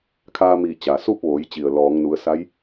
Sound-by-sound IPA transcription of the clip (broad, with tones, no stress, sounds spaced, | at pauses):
kʰ aː˧ m iː˧˩ t͡ɕ a˩ s u˥˨ p̚ ʋ oː˩˧ j t͡ɕ i˩ ə̯ l ɔː˩˧ ŋ n u˩˧ ə̯ s a˧˥ j